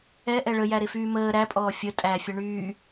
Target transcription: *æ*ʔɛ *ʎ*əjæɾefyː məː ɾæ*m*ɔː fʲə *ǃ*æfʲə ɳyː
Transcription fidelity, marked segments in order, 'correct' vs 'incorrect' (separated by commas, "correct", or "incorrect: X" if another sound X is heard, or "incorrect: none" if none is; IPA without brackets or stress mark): incorrect: ɛ, incorrect: ɭ, incorrect: pʼ, incorrect: tʼ